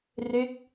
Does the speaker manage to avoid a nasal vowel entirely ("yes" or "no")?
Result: yes